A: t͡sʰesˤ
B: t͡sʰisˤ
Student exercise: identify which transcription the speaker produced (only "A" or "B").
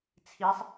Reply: B